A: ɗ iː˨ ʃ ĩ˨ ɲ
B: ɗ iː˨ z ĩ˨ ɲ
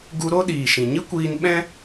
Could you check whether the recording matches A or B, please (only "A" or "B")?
A